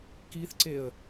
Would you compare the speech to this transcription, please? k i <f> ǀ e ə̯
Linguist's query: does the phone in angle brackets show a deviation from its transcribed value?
yes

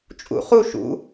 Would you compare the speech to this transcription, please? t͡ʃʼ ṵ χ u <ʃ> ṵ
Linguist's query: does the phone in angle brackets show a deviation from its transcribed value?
no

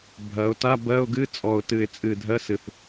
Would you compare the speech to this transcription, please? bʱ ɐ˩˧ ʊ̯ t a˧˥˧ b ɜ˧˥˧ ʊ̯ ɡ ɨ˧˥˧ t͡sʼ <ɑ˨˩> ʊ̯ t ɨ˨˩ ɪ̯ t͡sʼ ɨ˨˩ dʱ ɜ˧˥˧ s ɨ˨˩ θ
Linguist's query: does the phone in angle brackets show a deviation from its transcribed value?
yes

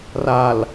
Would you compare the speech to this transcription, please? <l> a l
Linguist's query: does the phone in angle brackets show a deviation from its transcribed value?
yes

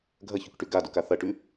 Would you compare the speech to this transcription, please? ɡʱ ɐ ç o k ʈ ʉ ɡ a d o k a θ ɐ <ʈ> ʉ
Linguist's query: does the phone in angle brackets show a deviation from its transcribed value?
no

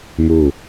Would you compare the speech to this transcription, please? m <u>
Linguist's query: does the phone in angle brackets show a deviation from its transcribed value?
no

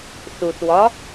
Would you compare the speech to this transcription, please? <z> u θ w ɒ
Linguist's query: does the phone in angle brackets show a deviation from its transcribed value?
yes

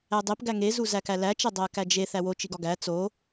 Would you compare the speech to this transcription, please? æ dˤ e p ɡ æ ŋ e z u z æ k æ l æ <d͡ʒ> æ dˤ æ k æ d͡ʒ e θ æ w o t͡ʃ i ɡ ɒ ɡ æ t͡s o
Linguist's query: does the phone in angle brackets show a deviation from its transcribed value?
yes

